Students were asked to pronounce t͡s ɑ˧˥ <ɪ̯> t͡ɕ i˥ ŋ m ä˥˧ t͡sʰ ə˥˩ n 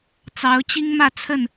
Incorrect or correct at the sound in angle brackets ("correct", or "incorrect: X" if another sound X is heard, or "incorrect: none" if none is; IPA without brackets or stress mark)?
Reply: incorrect: ʊ̯